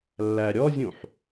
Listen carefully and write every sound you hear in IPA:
lː æ ɾʲ ɔ zʲ ũ ħ

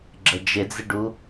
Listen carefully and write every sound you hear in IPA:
ɡ͡ǁ ə d͡ʒ ɪ d͡z ɪ ɖ u

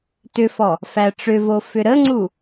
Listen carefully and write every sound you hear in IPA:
t ʏ f ɔ | f æ ʈ͡ʂ ʏ v o f ʏ ɾ ə ŋ͡ǀ u

